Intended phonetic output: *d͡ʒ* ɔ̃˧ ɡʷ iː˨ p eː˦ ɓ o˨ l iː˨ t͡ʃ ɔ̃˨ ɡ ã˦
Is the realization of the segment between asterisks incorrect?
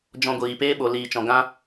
no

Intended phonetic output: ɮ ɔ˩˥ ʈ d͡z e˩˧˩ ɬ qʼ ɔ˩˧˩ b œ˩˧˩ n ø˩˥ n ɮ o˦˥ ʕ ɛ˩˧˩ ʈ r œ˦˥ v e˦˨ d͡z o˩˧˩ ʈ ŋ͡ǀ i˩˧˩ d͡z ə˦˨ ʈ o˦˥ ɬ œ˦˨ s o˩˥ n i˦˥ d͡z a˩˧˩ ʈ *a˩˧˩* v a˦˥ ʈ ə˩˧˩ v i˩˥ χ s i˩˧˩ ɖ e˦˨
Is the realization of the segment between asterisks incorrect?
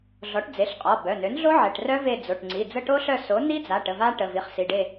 yes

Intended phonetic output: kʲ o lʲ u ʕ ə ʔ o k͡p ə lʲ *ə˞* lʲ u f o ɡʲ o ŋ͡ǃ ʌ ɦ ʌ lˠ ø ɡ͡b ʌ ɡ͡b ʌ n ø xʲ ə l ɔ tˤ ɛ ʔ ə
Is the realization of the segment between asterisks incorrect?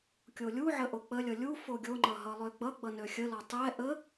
yes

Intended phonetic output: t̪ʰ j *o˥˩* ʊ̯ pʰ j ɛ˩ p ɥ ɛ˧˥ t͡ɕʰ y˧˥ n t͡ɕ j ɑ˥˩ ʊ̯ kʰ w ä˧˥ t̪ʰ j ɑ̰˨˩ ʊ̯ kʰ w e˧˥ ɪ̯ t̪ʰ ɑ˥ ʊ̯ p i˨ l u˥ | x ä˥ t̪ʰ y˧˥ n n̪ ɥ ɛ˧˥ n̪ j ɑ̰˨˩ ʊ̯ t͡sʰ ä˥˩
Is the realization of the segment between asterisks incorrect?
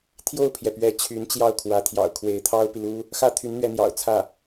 no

